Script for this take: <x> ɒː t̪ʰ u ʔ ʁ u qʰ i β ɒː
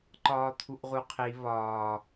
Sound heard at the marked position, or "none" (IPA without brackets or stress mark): ǃ